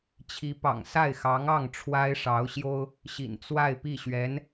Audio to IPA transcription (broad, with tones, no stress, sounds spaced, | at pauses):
t͡ɕʰ i˧˥ p ɑ̰˨˩ ŋ s a˥˩ ɪ̯ x ɑ˧˥ ŋ ɑ˥˩ ŋ ʈ͡ʂʰ w a˥ ɪ̯ ʂ ɑ˧˥ ʊ̯ ɕ j o˥ ʊ̯ | ɕ ḭ˨˩ n t͡s w a˥˧ ɪ̯ p i˥˩ ɕ ɥ ɛ˧˥ n